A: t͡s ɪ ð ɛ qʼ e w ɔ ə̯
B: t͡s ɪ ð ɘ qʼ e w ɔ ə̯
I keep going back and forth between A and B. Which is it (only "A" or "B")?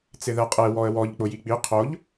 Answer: A